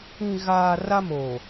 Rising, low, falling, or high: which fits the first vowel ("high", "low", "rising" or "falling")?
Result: low